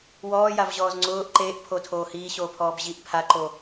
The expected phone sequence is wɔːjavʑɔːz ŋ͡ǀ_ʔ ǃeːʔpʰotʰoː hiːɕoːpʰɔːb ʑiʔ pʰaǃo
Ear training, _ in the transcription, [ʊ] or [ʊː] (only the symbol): ʊː